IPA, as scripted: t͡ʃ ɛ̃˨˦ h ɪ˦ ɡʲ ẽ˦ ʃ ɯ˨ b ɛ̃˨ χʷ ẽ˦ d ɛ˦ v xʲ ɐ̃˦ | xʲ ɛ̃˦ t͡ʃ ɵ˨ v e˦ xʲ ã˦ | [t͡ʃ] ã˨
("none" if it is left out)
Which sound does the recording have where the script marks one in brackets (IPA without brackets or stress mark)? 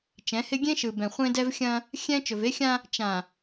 t͡ʃ